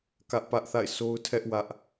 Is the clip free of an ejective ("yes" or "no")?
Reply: yes